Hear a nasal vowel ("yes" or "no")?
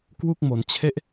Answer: no